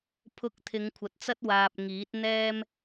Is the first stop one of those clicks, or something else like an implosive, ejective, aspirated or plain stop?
aspirated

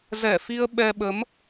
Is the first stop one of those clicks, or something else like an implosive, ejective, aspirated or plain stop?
implosive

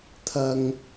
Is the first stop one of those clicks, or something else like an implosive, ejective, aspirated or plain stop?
aspirated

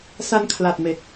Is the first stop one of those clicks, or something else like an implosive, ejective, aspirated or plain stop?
aspirated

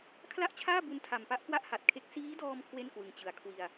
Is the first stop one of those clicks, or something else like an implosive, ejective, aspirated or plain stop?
aspirated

